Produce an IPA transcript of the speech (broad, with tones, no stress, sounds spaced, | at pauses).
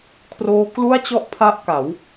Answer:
kʰ r oː˦˥ k l u˥˩ a̯ t͡ɕ ɔ˥˩ ʔ pʰ a˥˩ ʔ k a˩˦ w